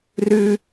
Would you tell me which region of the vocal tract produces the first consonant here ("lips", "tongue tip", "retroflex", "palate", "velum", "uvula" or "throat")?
tongue tip